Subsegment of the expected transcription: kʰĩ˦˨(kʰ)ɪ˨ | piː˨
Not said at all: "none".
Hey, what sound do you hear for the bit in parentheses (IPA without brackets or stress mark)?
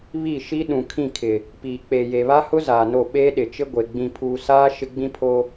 kʰ